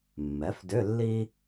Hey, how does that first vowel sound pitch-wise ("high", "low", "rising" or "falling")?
rising